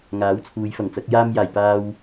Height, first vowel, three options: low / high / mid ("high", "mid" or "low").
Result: low